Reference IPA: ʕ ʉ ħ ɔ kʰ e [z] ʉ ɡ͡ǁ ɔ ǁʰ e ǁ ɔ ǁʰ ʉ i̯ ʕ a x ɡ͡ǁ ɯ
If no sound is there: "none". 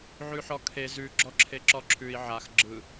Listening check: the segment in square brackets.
z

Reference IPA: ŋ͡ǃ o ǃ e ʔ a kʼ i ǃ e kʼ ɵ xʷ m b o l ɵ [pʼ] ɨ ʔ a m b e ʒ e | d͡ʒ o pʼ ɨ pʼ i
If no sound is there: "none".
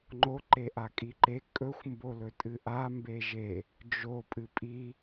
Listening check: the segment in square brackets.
tʼ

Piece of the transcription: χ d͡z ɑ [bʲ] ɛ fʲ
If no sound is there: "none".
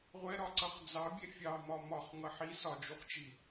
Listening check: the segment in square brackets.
bʲ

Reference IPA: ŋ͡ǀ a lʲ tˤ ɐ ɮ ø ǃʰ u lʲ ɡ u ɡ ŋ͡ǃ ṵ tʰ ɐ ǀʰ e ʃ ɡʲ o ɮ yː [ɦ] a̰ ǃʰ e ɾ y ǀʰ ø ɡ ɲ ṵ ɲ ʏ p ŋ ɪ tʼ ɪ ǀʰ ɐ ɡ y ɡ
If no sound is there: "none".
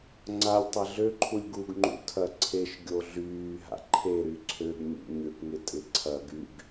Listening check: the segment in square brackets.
ɦ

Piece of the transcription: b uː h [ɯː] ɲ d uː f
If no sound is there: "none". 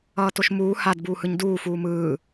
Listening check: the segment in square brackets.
ɯ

